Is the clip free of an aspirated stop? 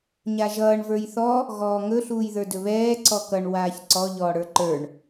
yes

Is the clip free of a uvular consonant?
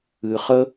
no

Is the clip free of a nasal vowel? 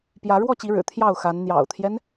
yes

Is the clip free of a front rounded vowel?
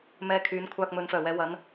no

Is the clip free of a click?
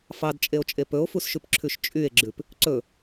no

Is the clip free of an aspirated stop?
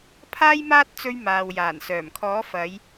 no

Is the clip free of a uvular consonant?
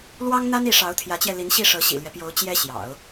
yes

